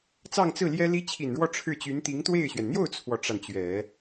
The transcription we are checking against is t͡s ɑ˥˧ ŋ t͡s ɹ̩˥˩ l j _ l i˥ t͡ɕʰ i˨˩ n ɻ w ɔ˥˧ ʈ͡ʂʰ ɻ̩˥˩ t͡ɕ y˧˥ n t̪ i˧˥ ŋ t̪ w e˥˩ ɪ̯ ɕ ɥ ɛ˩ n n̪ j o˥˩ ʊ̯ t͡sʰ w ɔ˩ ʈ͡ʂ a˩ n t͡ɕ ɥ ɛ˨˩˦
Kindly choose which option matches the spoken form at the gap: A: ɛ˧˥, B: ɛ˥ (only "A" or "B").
B